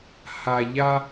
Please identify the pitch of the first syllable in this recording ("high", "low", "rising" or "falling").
low